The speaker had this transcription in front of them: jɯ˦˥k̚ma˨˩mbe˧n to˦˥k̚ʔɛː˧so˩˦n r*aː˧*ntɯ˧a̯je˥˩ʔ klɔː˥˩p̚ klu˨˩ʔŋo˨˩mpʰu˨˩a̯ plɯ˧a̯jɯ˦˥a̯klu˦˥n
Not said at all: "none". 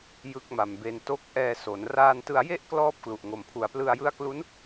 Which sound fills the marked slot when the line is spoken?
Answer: aː˧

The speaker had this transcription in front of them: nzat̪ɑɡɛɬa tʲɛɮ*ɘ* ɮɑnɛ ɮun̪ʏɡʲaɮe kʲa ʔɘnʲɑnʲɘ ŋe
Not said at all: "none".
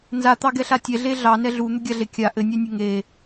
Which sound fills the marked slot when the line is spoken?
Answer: e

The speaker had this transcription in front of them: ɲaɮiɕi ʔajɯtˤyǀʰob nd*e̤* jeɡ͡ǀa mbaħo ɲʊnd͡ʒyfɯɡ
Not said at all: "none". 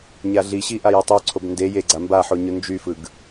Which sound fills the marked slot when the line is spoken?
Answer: e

